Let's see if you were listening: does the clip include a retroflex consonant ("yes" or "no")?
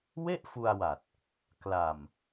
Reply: no